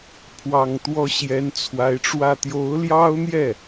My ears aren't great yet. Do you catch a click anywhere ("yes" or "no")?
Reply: no